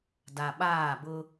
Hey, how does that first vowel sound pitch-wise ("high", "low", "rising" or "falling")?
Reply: low